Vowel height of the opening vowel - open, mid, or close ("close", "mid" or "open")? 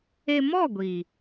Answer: mid